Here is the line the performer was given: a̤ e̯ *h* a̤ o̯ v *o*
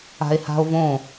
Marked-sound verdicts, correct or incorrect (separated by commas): correct, incorrect